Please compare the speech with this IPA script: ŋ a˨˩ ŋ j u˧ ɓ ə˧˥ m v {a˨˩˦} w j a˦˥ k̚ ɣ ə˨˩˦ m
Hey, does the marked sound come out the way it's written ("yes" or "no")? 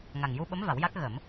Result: yes